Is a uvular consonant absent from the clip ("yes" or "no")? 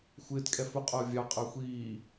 no